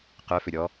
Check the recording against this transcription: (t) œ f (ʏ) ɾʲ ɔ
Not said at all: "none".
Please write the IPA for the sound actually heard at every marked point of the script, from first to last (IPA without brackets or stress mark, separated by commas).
q, ʏ